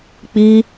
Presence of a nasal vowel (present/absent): absent